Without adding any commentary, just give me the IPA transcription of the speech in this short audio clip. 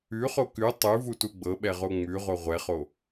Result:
ʉχo kʉ tˤʉvutu ɡ͡bɤɓɛʁo ŋ͡mʉʁo ʁʷɛχo

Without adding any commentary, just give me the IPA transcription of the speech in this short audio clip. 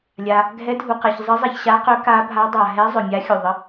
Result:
lʲa˨ | ɡʱɛ˧˥dʱu˨qɛ˨ç zˤə˧˥zˤɛ˨çɕa˧˥qœ˧˥ ka˧˥bʱa˧˥dˤa˨ ɦɛ˧˥ zˤœ˨mʲa˧˥xʲu˨ ðˤə˧˥

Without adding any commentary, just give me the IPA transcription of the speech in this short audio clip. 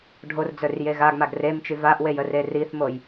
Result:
ɖʱord͡zœrje ɣaɡmaɡ remt͡ʃy vaʔwejəre riθmoj

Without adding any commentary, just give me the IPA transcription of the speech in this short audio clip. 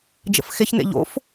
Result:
d͡ʒə̰fxeçnḛ ʎo̰f

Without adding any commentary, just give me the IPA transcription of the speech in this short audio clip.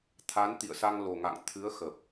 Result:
t̪ʰa˨˦n t̪ḭ˧˨ə̯sa˧ŋlo˨˩ŋa̰˧˨ŋ t̪ʰɨ˨˦ə̯xə˨˩p̚

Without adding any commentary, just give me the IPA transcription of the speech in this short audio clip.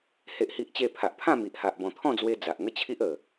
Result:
he˦ʔhi˦ʔt͡ɕe˥˧ pʰa˨ʔpʰã˥˧mi˨ʔha˨ʔ bɔ̃˨˩t̪ʰɔ̃˥˧d͡zwe˧ d͡za˨ʔŋə˥˧t͡ɕʰi˦ʔ ə˨˩

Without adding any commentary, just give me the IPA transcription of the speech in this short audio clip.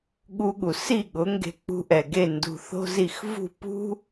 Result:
ɠu˧ɠu˩si˥˩ ɠʊ˩˥ŋɡe̤˧ k͡pṳ˧ ʔɛ˩ɡe˥˩ ndṳ˧θo̤˥zi˥˩x vṳ˥˩pṳ˥

